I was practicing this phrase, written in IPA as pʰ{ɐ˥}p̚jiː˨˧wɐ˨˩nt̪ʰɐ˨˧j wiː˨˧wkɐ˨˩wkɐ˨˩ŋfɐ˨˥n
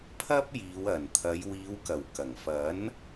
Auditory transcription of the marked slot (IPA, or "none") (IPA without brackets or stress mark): ɐ˥